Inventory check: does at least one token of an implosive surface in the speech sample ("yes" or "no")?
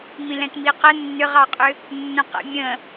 no